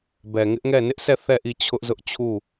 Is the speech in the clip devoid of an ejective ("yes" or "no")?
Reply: yes